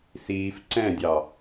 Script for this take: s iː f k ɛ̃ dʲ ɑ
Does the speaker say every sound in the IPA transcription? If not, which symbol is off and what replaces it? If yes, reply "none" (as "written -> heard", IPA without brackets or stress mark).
k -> ǀ